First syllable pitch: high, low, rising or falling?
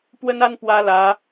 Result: high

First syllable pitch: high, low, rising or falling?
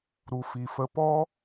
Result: low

